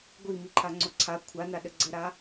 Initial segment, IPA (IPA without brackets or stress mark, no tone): ɡʷ